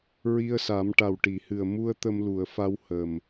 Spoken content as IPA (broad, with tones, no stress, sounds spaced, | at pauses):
ɹ i˧ ə̯ s a˨˩˦ m ʈ a˨˩ w ʈ i˨˩˨ h ɨ˨˩ ə̯ m u˧ ə̯ t̪ ə˧ m l u˨˩˨ ə̯ f a˧ w h ə˨˩ m